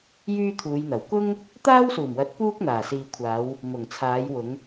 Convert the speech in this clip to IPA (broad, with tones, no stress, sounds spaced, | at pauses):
j yː˥ t̪ʰ uː˨˧ j n̪ ɐ˨˩ w k ʊ˥ ŋ | t̪ aː˥ w s uː˨˩ m w ɐ˨˥ t̚ p uː˥ k̚ n̪ aː˨˩ s iː˨ kʷʰ aː˨˧ w | m ʊ˨˩ ŋ t͡sʰ aː˨˧ j w ʊ˨˧ ŋ